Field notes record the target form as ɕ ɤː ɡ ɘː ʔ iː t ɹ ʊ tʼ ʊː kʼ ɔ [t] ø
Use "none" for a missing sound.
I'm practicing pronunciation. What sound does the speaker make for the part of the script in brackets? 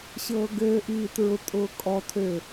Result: tʰ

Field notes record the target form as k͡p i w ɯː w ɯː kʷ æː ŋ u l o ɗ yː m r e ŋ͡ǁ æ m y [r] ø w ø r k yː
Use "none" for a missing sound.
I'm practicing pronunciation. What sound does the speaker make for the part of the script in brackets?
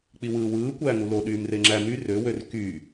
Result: r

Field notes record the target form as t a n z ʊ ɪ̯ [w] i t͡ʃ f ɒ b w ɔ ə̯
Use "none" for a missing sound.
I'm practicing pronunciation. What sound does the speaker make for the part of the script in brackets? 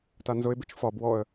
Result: b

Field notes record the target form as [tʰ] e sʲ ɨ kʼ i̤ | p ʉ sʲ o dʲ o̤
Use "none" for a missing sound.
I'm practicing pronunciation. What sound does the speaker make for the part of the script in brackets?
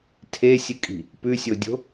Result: tʰ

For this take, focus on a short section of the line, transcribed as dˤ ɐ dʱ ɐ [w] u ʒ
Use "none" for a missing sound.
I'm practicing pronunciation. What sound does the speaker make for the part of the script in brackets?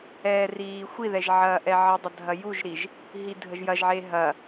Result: j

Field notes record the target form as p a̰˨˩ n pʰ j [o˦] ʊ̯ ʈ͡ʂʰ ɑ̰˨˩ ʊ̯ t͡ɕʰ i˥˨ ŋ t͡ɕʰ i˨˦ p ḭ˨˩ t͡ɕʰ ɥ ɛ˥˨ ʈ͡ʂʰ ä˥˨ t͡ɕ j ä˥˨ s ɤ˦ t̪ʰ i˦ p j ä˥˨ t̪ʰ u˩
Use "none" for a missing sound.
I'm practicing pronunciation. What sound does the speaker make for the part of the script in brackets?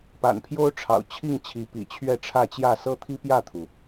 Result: o˦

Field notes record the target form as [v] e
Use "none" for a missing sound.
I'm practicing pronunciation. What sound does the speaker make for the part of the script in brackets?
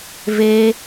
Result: v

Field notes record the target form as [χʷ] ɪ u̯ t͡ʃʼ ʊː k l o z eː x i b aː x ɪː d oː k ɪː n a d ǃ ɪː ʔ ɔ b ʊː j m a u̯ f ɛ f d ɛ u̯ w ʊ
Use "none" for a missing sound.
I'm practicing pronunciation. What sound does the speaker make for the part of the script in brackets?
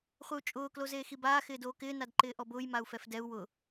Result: χʷ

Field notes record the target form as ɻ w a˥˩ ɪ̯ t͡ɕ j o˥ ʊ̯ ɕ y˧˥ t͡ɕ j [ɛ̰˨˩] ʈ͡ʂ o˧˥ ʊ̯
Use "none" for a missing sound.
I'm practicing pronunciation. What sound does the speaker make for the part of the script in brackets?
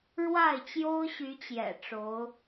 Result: ɛ̰˨˩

